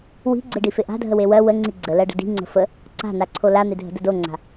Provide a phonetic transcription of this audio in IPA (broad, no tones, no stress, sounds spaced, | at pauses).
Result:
w i̤ ɡ͡ǀ e ɖ i f e ʔ a̤ dʱ ə w e w ɜ w ə ŋ͡ǀ i ɡ͡ǀ ə l ɜ ɖ ə̤ d i̤ ŋ͡ǀ ə̤ f ə | ǀ a̤ n a ǀʰ o l a n̪ e dʱ ə̤ d ə d o ŋ͡ǀ a̤